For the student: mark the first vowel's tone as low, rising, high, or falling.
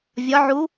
rising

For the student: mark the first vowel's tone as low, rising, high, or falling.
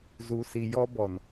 low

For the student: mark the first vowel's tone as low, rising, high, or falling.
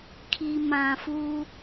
low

